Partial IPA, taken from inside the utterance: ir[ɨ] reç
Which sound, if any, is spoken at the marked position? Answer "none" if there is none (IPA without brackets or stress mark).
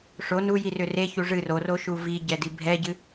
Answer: ʏ